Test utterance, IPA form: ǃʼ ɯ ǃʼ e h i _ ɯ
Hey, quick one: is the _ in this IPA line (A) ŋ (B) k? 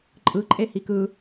B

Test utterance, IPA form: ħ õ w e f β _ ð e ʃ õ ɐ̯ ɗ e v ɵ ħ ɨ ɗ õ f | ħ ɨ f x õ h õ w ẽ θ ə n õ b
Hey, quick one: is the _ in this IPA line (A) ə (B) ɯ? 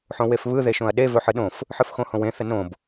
B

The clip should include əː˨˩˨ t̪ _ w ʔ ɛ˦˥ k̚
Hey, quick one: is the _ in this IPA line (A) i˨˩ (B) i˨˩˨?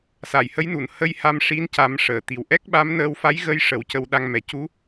A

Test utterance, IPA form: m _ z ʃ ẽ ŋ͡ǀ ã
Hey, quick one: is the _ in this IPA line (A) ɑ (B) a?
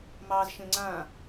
A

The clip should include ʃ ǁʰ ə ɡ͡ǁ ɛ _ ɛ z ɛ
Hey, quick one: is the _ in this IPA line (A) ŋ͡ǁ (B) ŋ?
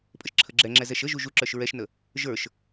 A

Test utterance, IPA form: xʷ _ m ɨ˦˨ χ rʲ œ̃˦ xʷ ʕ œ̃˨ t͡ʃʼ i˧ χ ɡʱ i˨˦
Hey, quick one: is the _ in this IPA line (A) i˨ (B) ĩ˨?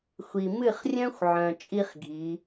A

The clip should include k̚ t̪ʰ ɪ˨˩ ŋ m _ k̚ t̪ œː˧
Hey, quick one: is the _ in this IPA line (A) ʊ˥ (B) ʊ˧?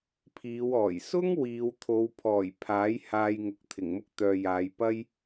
A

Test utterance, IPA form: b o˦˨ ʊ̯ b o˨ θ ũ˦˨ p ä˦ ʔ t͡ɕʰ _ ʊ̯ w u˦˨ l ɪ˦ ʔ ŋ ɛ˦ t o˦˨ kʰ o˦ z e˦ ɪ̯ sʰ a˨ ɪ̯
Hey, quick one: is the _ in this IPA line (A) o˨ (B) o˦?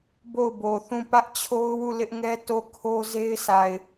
B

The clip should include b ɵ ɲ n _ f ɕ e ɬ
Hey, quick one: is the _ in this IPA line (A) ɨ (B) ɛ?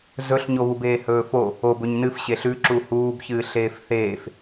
A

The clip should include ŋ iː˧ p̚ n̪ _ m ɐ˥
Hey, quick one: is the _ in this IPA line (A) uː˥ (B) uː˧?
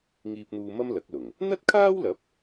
B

